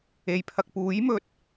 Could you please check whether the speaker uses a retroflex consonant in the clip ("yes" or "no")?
no